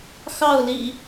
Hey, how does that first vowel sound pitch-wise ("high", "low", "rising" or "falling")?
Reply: falling